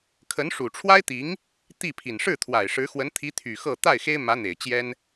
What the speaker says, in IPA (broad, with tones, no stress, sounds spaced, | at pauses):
kʰ ə˧˥ n ʂ u˨˩ ʈ͡ʂʰ w a˥ ɪ̯ t̪ i˧˥ ŋ | t̪ i˥˩ pʰ i˨˩ n ʂ ɻ̩˥˩ t̪ʰ w a˨˩ ɪ̯ ʂ ɻ̩˧˥ x w ə˧˥ n t̪ʰ i˧˥ t̪ʰ y˨˩ x ɤ˥˧ t̪ a˥˩ ɪ̯ x e˥ ɪ̯ m ä˧˥ n̪ e˨˩ ɪ̯ t͡ɕ j ɛ˥ n